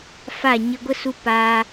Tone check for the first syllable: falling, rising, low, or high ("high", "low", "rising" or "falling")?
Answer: falling